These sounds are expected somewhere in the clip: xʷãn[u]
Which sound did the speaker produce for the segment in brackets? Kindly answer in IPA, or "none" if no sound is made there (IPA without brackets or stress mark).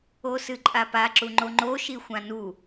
u